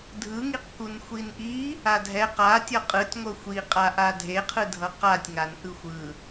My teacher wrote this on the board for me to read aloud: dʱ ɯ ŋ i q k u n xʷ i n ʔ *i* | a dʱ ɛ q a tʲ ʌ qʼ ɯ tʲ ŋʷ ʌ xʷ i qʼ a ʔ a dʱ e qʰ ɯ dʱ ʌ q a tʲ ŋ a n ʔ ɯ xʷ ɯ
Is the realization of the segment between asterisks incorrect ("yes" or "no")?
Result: no